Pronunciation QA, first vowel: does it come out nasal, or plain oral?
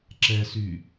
oral